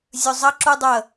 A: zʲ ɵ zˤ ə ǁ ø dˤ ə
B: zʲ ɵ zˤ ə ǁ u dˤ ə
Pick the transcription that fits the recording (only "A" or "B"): B